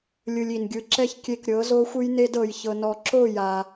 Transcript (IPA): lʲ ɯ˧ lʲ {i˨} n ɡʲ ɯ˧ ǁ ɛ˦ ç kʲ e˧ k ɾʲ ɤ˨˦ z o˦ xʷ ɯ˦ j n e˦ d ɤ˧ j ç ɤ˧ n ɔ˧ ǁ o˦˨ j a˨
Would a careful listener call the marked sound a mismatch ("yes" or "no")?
no